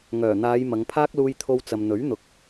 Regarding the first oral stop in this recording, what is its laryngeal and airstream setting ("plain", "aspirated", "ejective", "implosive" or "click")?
aspirated